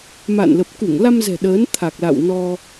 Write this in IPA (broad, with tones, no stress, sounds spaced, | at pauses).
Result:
m a̰ː˧˨ n l ə˨˩ p̚ k u˧˩ ŋ l a˧ m z ɛ̤˨˩ ɗ əː˨˦ n t̪ʰ a˨˩ k̚ l a̰˧˨ w n ɔ˧